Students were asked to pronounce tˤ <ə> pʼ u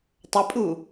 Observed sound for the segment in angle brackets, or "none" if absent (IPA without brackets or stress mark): ə